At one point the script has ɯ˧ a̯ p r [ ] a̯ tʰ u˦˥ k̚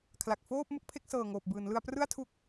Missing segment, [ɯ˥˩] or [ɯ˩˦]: ɯ˥˩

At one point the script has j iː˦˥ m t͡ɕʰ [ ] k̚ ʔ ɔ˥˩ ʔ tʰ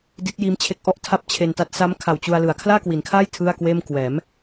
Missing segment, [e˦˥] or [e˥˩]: e˦˥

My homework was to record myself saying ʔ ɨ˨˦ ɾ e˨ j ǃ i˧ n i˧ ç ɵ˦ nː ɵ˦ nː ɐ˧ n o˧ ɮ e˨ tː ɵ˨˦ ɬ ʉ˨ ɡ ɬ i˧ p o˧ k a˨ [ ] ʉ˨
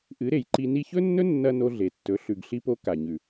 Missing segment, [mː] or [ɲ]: ɲ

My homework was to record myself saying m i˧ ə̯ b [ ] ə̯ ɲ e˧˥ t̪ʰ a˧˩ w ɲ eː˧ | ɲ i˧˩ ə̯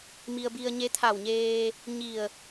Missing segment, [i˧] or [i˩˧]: i˧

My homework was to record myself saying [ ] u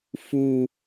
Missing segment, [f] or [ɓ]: f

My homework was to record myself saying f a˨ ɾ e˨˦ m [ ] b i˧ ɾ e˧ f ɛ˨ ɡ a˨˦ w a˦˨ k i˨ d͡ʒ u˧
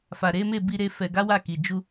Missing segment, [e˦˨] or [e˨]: e˦˨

